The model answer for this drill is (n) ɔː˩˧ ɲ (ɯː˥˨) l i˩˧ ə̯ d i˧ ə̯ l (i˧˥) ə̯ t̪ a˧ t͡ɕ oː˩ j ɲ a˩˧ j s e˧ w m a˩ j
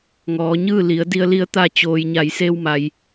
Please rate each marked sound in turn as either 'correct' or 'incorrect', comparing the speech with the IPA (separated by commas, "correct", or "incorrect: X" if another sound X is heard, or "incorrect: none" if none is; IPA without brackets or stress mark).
incorrect: ŋ, correct, correct